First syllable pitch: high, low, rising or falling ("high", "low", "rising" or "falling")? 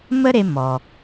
high